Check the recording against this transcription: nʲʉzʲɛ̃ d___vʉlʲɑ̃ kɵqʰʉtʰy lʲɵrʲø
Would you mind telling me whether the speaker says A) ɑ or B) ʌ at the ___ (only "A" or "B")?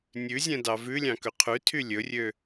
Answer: A